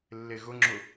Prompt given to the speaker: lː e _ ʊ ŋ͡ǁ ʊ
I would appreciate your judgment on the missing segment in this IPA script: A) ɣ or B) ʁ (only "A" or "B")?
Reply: A